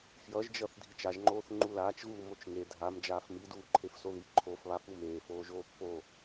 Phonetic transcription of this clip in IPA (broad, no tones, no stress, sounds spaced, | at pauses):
f j ʌ ʒ d͡ʒ ʌ θ dʱ i t͡ʃ a ʒ ŋ͡ǃ oː θ ŋ͡ǃ u l aː t͡ʃ ɣ uː m o t͡ʃ ŋ e dʱ a m d͡ʒ aː f m i d uː ǃʰ e f s o ð i ǃʰ o f β a f u m eː f oː ʒ oː pː o